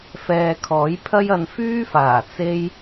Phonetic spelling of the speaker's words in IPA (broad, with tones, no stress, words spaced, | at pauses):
fɛː˧kʰɔː˨˥jpʰɐ˥jɐ˧n fyː˥faː˨˩ t͡se˧j